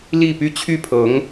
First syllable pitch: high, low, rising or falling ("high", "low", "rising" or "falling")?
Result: falling